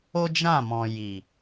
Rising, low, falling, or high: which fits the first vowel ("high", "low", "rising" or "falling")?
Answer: high